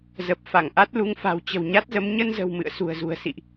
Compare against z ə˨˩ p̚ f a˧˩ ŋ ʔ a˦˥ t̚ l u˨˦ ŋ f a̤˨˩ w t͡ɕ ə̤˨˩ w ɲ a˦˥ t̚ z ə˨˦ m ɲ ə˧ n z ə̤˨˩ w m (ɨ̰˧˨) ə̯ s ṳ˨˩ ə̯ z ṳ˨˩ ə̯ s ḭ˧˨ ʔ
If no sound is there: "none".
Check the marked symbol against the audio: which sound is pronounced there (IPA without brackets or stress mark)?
ɨ̰˧˨